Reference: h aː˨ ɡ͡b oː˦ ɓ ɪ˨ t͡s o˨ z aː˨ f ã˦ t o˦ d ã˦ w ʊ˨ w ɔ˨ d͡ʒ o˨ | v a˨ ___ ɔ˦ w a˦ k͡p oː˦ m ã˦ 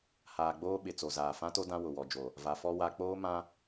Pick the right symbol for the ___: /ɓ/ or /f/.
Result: f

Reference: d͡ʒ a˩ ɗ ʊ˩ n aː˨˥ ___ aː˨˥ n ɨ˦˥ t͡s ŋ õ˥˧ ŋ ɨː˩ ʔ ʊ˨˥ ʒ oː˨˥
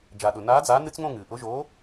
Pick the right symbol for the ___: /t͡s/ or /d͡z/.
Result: d͡z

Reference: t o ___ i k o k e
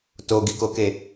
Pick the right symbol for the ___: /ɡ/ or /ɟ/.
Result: ɡ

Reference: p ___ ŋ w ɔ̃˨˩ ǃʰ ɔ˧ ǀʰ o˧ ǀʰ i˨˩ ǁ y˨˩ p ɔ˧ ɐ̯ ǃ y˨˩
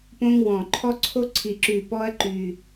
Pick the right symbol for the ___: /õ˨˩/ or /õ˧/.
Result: õ˧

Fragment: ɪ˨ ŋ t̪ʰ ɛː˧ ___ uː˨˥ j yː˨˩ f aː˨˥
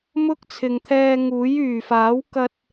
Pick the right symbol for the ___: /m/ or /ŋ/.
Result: ŋ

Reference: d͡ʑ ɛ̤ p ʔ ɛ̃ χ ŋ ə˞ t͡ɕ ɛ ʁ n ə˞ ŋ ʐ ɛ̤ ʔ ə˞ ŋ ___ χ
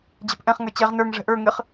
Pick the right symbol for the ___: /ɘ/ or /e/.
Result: ɘ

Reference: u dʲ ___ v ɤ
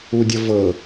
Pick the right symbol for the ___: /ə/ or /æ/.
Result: ə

